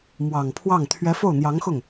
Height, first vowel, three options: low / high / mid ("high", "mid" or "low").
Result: low